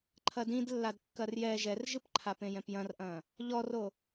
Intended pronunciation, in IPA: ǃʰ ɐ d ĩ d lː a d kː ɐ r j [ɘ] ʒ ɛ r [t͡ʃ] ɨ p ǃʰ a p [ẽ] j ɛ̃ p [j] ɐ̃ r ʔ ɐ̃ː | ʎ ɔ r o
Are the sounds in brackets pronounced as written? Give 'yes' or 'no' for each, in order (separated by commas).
no, no, yes, yes